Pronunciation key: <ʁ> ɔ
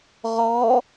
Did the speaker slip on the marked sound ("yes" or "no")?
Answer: no